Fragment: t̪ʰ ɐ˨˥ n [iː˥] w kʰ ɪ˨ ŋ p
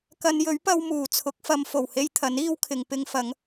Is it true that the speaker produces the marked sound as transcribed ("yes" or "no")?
yes